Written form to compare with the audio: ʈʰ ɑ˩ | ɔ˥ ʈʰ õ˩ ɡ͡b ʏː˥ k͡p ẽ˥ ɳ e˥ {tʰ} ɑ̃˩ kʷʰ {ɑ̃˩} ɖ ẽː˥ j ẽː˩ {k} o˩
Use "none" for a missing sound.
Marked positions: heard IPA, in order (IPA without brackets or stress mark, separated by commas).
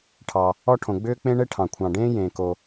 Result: ʈʰ, ɑ̃˩, k